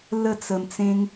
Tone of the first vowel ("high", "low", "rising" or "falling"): falling